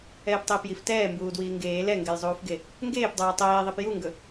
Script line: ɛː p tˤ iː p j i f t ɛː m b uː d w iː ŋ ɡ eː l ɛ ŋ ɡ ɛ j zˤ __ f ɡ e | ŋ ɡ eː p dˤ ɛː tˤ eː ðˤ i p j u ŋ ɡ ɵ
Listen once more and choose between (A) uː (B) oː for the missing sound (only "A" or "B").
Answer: A